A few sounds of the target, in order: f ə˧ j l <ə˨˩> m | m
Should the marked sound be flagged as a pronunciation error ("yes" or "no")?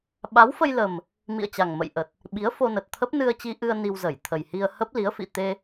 no